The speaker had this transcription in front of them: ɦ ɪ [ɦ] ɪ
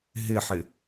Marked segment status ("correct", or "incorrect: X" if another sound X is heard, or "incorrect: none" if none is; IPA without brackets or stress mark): incorrect: ħ